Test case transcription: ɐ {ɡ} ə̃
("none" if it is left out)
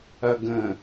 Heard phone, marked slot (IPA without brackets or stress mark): ɡ